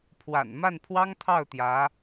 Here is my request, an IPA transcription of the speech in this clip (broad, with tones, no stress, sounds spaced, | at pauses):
pʰ w a̰˨˩ n m a˥˩ n pʰ w ɑ˥ ŋ t̪ʰ ɑ˥˩ ʊ̯ t̪ j ä˧˥